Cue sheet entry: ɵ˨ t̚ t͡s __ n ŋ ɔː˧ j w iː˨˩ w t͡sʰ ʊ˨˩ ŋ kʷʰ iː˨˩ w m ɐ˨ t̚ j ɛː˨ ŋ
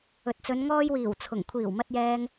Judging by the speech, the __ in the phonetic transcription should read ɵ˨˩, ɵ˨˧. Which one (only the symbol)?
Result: ɵ˨˧